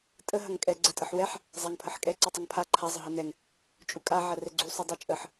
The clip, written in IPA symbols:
tʼ ə ɦ ɐ ŋ kʼ ɛ ɡ͡ǀ ɛ tʼ ə ħ w ɛ ħ | zˤ a ŋ pʰ ə ħ kʼ ɛ ǀ u tˤ ə ŋ pʰ a ǃʰ a zˤ ə ɦ ɐ n ɛ ŋ | t͡ʃʼ u kʼ a ʕ ɐ r ɛ ɡ͡ǀ u sˤ u dˤ u t͡ʃʼ ə ħ

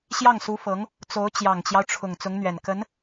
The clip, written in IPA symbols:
ɕ j ɑ˥˩ ŋ s u˧˥ f ɤ˧˥ ŋ | t͡s o˧˥ ʊ̯ t͡ɕ j ɑ˨˩ ŋ t͡ɕ j ɑ˦ ʊ̯ ʈ͡ʂʰ ʊ˨˩ ŋ t͡s ʊ˧˥ ŋ n̪ ɥ ɛ˨˩ n k ə˧˥ n

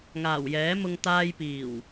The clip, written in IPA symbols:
ŋ aː˨˩ w j ɛː˨˥ m ʊ˧ ŋ t̪ aː˧ j p iː˨˩ w

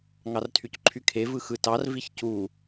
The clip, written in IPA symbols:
ŋ ɑ r tʰ y c ǃʰ y kʰ e v ɯ x ɯ t ɑ r v i ç c u

